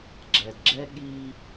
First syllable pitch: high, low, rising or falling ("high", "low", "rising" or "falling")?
low